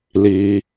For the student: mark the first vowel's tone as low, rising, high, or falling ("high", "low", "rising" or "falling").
low